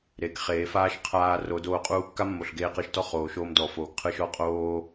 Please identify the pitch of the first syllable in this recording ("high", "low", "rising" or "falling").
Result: low